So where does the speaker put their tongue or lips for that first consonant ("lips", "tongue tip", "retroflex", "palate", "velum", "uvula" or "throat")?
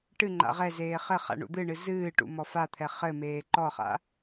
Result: retroflex